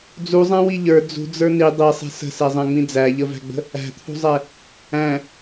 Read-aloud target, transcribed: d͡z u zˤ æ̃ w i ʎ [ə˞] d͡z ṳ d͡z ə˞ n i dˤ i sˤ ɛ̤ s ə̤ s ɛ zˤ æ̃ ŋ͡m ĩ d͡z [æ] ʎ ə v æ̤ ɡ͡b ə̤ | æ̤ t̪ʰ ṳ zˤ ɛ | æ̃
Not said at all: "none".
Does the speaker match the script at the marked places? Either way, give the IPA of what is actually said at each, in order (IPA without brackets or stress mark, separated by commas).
ə˞, æ